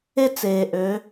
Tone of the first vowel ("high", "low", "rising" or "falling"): high